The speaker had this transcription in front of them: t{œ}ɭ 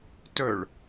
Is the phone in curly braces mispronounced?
no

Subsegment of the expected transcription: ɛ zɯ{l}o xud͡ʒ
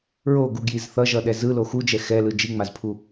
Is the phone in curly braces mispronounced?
no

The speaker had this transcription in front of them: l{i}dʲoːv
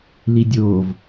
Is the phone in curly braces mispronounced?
no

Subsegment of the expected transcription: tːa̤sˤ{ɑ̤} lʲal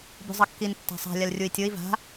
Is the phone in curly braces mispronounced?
yes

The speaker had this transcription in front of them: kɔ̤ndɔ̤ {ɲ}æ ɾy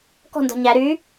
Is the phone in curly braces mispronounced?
no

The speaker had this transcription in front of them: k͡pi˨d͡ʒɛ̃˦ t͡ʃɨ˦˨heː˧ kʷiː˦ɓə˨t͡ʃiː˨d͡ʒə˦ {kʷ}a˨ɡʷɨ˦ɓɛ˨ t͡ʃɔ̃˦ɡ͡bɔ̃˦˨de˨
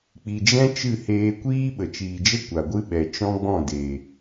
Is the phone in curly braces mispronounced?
no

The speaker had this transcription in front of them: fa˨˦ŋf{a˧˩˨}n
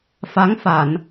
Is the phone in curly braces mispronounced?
no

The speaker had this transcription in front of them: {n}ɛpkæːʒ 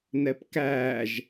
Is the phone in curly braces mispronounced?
no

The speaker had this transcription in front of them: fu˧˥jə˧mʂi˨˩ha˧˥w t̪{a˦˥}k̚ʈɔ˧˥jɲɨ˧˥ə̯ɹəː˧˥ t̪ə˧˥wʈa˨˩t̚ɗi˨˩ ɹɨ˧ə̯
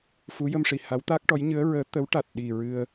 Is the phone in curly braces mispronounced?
no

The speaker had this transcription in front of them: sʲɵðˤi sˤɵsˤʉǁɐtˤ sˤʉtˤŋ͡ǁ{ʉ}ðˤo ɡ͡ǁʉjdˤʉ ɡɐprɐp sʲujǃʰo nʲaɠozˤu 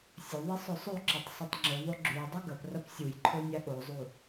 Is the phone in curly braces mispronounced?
no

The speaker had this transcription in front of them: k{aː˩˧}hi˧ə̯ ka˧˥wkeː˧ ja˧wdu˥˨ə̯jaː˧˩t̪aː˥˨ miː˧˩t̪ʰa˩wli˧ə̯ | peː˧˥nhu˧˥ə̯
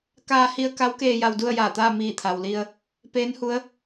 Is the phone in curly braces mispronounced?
yes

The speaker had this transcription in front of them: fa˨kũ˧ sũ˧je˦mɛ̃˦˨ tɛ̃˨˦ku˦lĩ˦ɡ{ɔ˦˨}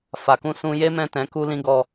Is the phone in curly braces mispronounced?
no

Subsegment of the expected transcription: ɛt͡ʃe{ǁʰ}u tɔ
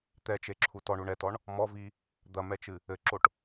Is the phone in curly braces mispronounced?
no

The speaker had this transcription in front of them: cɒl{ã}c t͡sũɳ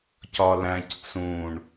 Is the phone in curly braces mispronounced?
yes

